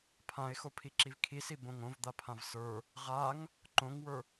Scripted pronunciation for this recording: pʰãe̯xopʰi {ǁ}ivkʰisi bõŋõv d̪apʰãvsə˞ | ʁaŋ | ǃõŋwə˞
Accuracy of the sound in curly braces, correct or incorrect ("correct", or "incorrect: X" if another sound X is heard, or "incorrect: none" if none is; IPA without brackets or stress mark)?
correct